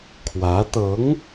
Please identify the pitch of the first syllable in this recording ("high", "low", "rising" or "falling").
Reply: rising